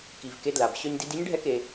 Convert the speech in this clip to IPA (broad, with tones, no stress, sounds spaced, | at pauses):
k i˨ v k e˧ d l a˨ b ɕ œ˧ ɲ d i˧ d i˦ ɲ ɖʱ ɛ˦ k e˧